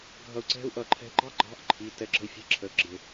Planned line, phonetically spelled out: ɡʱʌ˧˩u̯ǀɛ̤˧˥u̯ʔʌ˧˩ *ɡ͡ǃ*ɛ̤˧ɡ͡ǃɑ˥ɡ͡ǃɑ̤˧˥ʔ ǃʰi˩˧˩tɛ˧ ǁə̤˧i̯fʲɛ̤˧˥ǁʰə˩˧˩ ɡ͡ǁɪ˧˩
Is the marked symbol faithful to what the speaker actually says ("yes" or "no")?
no